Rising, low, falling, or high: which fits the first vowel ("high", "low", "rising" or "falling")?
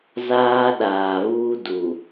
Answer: high